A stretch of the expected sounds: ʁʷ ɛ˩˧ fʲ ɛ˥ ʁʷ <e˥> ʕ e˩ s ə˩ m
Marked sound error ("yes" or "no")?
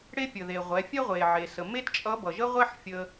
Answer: yes